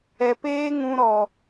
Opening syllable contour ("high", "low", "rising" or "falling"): low